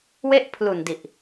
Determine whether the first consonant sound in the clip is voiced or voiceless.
voiced